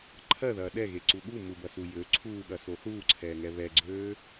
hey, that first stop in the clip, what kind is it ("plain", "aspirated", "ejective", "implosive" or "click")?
click